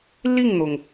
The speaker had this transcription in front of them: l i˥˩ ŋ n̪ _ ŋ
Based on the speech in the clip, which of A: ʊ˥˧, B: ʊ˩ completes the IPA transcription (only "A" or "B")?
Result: B